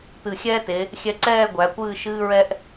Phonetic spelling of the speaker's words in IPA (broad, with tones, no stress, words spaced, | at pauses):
t̪ɨ˧˩xʲɛː˥te˩˧ | xʲɛ˧ǀɛː˥˧ɡʷæ˩˧ kʷɨː˥˧ ʃɨː˥ɹɛ˥ʔ